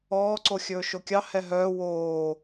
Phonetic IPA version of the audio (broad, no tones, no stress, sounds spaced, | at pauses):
ɔː ǀ o xʲ ɵː ʃ o kʲ ɑ h ɛ ɦ œː w oː